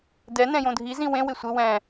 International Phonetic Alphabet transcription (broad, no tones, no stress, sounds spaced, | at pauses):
d ɛ n ɛ̃ j õ dʱ i z ĩ w ẽ w ɪ sʷ ɪ w ɛ̃